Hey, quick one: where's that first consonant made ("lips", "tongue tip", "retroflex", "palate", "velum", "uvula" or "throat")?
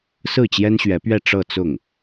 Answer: tongue tip